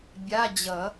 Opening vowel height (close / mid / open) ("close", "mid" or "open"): open